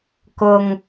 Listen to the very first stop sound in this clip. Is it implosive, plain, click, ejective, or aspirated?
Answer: plain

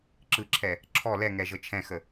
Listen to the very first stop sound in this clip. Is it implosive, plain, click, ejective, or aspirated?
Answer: click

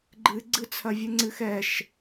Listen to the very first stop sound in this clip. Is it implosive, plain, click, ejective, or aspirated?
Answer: click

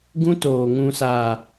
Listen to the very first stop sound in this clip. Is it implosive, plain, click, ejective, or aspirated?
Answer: plain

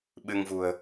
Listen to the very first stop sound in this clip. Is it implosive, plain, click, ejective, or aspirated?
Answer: implosive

